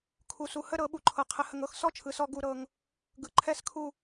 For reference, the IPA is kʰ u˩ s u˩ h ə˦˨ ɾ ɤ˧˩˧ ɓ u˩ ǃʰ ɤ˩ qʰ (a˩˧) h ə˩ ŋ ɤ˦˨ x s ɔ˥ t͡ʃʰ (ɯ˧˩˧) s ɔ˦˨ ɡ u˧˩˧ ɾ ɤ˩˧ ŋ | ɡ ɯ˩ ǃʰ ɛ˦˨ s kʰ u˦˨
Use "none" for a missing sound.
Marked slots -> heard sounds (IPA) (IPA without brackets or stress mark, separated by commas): ə˩˧, ɯ˩